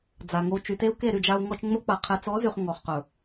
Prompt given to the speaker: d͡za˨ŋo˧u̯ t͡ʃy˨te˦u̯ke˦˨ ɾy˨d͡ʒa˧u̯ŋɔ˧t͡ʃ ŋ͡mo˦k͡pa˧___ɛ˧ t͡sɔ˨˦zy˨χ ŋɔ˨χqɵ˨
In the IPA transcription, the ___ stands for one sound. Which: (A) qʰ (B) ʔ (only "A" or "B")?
A